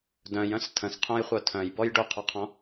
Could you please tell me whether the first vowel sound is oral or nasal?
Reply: nasal